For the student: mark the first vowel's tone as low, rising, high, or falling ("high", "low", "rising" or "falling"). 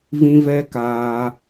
high